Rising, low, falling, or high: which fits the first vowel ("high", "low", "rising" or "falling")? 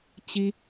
high